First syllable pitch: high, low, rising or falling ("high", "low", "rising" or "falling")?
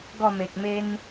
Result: falling